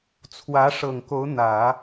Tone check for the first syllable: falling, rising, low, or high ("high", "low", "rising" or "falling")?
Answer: rising